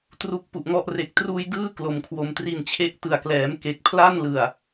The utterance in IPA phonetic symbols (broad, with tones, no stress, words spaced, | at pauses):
tru˦˥k̚pu˨˩ʔŋɔ˥˩ʔ re˨˩k̚truː˧j dɯː˥˩ klo˩˦mkʰwo˨˩mtri˧n t͡ɕʰe˦˥ʔtɯ˨˩a̯klɛː˩˦m ke˨˩k̚pʰla˥˩nlɯ˨˩a̯